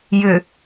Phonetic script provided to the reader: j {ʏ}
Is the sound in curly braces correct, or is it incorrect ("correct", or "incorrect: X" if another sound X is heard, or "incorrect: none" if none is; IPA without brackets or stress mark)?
correct